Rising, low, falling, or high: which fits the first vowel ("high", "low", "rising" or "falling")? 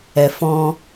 low